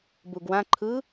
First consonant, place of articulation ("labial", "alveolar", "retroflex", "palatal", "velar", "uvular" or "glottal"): labial